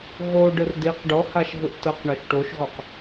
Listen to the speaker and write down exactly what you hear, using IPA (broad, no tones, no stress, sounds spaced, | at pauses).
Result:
ɣ o ɖ ɯ r d i q ɖ ɔ h a ʃ ɣ ɯ ʔ t ɤ q ɳ ɔ ʃ ʈ o ʃ ɣ ɔ q